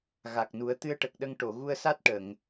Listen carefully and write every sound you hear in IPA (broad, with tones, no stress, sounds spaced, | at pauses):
ɣ a˨˩ k̚ n u˨˩˦ ə̯ t̪ ɨ˧ ə̯ ʈ ə˨˩ k̚ ɗ ə˧ ŋ ʈ o˨˩˨ ɣ u˧ ə̯ s a˦˥ t̚ ʈ ə˨˩˨ ŋ